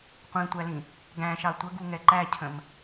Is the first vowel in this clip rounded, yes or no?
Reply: no